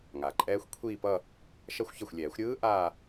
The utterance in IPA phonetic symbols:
ŋ a˩ ǃʼ ɛː˦˥ xʷ kʷʰ iː˥˧ p ʌ˥˧ | ʃ ʌ˥˧ xʷ ç ʌ˥˩ xʷ lʲ ɛː˨˩˦ xʷ ɾʲ ɯː˦˥ ʔ aː˥˧

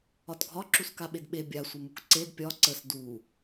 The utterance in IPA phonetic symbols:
ɒ t ɡʱ ɒ ǁ u s k a ɓ e d ɓ e bʲ a sʷ ə m u k ǀ e d pʲ ɒ ǀ ə s d u

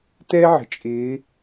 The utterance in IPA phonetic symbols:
t ɛ˥ ʕ ə̤˨ t͡ʃʼ ɪː˧˥

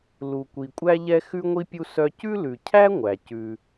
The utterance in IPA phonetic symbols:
l u˩ kʷ i˩ kʷʼ æ˧ ʎ ɛ˧ x ʉ˧ ŋʷ i˧ pʲ u˧ s œ˧ c ʉ˥ l ʉ˩ cʰ æ˥ ŋʷ æ˩ c ʉ˩

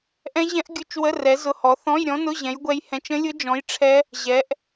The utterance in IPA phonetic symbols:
ʔ ɛ̃˦˥ ʑ ɛ̃˦˥ ʔ ɡʲ ʊ˧˥˧ t͡ʃ w ə˧˥˧ r ɛ˨˥ z ʊ˧˥˧ h ɔ˨˥ θ ɔ̃˧˥˧ j ɾʲ ɔ̃˦˥ n ʊ˧˥˧ ʑ ɛ̃˨˥ j ɡʷ ɛ˦˥ j h ɛ̃˧˥˧ t͡ʃ ə̃˦˥ lʲ ʊ˦˥ d͡ʒ ɔ̃˨˥ j ʈ͡ʂʰ ɛ˦˥ | ʑ ɛ˨˥ ʔ

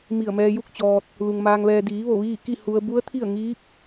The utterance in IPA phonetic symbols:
m i˧˩ ə̯ m ɛː˧ j u˥˨ k̚ t͡ɕ ɔː˧ t̚ | l u˩ ŋ m aː˧ ŋ ʋ ɛː˧ d iː˩˧ ʋ o˧˩ ʋ iː˥˨ k i˥˨ h u˧ ə̯ b u˧˥ ə̯ t̪ʰ i˥˨ ə̯ ŋ iː˧˥ p̚

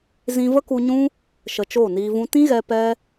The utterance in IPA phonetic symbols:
z ĩ˧ v ə˦ k u˧ ɲ ũ˦ | ʃ ə˧ t͡ʃ oː˦˨ n iː˧ v ũ˦ t ĩ˦ ɣ ɛ˧ p ɛ˦

